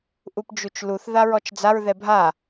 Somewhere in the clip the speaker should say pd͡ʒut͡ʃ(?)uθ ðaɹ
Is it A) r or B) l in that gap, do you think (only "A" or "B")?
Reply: B